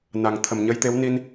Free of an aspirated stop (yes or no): no